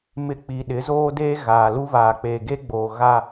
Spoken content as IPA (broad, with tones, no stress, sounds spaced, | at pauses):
m ɪ˨ k͡p i˨ ɗ ɪ˨˦ z oː˦ d eː˦ ɣ aː˨ l u˦ β aː˨ k͡p e˨ ɡ e˦ ɡ͡b oː˨ ɣ a˨